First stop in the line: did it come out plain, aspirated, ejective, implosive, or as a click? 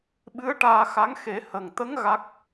implosive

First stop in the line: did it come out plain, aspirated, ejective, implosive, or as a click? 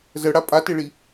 ejective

